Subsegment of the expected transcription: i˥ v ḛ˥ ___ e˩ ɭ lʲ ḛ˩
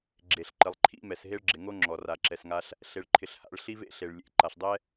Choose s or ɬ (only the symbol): ɬ